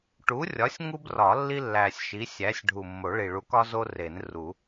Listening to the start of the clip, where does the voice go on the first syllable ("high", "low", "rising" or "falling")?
rising